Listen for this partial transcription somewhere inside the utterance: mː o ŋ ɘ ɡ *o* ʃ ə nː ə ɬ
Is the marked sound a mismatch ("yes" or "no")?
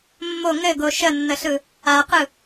no